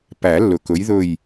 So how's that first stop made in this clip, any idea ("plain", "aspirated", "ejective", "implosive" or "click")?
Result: plain